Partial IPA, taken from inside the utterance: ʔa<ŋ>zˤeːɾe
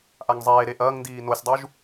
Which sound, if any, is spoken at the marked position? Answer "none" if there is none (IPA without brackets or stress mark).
ŋ